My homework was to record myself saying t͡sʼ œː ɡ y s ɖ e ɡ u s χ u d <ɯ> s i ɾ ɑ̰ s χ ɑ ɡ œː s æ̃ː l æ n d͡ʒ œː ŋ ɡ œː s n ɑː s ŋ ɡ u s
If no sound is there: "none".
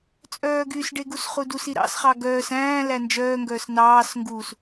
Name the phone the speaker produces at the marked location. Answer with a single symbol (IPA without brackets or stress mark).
u